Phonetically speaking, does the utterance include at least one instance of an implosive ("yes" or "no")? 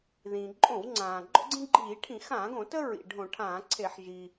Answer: no